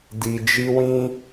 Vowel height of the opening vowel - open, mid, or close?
close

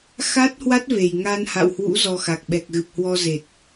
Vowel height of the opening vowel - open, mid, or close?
open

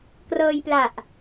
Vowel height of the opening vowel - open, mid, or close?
mid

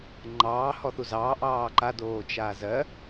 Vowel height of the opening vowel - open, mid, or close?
open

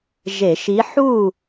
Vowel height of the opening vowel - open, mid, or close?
mid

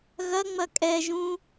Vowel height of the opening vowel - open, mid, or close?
open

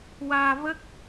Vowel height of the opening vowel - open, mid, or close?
open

